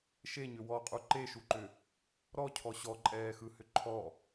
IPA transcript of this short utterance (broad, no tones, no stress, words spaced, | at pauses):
ʃeɲʏ wɔqʼu ǃeʃuǃʏ | ɾɔcʰɔ ɕɔǃʼɛːxɯhʏ ǃʰɔ